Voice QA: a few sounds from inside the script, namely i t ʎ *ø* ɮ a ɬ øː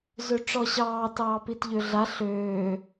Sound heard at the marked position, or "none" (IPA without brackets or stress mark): ø